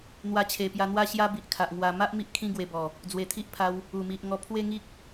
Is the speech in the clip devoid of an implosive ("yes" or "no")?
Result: yes